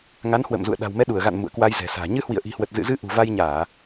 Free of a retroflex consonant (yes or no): yes